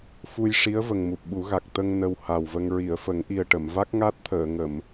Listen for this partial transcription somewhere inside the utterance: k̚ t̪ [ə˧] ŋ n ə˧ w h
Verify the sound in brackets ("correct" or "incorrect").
correct